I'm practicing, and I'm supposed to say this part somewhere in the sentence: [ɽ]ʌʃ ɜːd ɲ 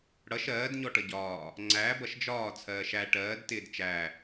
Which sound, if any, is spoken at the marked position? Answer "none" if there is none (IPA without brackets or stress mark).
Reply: ɽ